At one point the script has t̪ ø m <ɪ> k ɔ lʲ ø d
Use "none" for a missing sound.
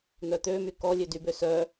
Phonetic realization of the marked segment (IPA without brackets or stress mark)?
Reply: y